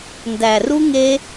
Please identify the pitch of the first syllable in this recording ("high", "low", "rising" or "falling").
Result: low